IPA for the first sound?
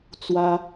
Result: t͡s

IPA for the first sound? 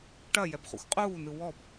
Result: ʈ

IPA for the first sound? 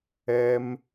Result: ɛ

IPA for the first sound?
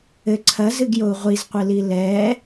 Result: ɘ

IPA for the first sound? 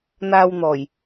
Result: n̪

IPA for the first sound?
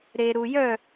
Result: ɾ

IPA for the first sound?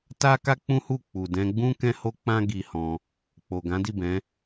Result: t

